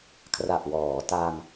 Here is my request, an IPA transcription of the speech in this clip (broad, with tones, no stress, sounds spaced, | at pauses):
kʰ r a˨˩ ʔ w ɔː˩˦ t a˧ ŋ